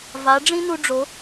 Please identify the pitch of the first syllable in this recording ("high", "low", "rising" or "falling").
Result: rising